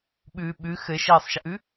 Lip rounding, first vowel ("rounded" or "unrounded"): rounded